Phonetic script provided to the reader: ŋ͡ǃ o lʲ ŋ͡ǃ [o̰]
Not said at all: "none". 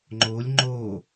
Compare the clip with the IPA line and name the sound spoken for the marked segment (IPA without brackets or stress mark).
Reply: o